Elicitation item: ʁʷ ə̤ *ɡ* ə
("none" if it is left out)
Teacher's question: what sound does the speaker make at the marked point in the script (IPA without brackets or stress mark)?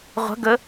ɡ